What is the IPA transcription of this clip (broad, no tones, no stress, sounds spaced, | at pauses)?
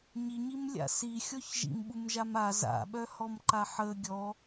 ɲ i ɲ i m lʲ a̰ s i xʲ ɔ ç ʒ ḭ m ɓ u m ʒ a m a z a̰ ɓ œ h ɔ m ǃ a ħ ə ɡʲ ɔ